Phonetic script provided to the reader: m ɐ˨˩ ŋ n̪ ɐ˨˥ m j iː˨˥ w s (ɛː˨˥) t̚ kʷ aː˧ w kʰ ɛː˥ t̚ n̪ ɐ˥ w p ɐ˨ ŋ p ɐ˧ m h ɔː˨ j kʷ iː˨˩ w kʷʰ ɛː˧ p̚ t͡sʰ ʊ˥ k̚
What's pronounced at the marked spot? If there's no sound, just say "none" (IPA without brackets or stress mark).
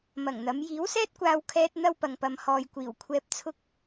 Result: ɛː˥